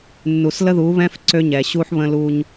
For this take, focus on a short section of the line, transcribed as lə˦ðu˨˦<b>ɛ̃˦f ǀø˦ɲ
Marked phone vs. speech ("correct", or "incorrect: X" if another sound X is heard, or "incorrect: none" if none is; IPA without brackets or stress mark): incorrect: β